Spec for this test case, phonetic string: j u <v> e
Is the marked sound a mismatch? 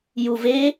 no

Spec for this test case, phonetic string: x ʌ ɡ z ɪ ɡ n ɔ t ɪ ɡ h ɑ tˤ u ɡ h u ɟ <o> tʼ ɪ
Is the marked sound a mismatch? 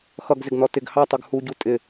yes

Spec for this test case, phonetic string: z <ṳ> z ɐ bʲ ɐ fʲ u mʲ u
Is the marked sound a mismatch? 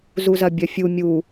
yes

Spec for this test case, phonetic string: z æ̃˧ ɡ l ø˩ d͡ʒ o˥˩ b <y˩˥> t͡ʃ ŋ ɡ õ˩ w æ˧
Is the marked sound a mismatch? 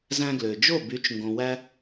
no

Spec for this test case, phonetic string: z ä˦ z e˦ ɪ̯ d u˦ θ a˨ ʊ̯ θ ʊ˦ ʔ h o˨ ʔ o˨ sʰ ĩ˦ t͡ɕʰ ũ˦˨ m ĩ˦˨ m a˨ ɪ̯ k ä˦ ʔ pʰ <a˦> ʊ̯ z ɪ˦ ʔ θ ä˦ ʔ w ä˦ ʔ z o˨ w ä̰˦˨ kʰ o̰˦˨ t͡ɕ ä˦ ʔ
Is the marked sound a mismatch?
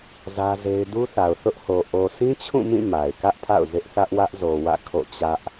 yes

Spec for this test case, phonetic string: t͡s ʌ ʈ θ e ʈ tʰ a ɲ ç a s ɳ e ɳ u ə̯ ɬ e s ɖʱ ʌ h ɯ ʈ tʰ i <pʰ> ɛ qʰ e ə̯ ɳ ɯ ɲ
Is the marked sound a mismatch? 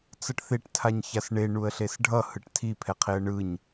no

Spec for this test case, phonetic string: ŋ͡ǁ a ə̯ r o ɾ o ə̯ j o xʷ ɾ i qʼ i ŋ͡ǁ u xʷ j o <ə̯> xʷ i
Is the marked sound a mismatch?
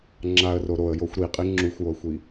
no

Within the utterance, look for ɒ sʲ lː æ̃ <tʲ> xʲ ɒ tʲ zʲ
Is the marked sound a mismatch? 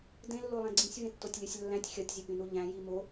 no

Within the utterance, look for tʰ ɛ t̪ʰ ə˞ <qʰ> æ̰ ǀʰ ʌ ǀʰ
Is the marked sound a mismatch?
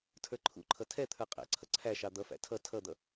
yes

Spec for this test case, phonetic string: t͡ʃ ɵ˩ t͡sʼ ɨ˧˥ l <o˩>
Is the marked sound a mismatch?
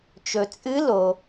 no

